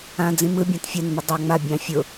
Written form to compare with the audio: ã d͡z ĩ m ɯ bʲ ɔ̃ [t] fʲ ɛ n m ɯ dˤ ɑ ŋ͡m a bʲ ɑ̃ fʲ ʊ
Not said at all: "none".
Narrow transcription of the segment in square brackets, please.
t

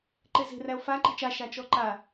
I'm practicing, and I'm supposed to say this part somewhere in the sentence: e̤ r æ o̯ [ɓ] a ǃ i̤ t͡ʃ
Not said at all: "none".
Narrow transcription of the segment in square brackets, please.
f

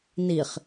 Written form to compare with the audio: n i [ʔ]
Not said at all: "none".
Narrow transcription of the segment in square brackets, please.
χ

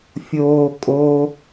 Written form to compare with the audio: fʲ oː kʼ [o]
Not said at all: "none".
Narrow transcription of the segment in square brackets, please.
o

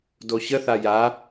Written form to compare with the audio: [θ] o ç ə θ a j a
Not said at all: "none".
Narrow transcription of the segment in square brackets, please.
d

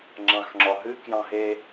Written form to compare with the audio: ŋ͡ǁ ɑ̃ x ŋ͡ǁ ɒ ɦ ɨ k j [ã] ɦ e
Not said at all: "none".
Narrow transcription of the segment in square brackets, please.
ɑ̃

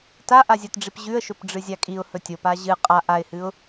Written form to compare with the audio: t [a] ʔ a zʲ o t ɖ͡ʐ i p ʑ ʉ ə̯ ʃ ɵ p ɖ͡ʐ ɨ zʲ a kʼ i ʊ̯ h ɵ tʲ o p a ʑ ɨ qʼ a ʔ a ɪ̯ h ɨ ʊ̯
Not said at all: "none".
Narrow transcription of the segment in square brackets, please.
a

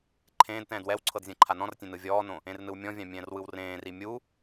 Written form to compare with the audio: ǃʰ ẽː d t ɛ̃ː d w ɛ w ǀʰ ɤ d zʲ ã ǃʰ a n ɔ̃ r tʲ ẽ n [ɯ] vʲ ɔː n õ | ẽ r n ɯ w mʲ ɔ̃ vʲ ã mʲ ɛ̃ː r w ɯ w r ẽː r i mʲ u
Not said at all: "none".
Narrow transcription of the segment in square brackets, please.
ɯ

